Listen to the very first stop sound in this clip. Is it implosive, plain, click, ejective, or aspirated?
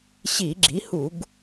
click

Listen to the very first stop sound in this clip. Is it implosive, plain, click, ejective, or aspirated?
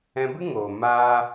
plain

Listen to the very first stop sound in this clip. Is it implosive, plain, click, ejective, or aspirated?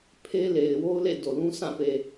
aspirated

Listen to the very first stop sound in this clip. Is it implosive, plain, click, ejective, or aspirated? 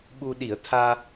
implosive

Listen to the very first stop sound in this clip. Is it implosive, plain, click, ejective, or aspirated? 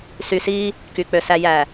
plain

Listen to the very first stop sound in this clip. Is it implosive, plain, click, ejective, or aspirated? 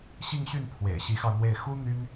aspirated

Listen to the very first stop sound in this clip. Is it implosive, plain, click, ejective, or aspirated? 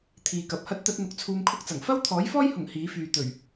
aspirated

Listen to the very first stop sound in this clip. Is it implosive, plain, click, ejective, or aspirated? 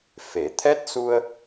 aspirated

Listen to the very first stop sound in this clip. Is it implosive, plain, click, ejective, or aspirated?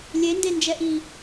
plain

